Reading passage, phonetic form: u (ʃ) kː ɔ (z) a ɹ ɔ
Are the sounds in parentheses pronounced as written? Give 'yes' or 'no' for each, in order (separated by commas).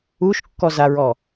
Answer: yes, yes